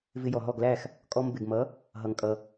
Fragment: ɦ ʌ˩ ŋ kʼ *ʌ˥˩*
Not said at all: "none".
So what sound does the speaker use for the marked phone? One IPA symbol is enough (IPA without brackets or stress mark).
ʌ˩